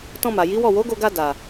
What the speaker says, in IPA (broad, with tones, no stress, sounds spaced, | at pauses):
t ɔ̃˧ m a˨ j i˨˦ w ɔ˦˨ w o˨˦ ɡ o˧ ɡ a˧ d a˨